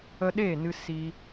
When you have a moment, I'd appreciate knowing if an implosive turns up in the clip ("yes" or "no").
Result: yes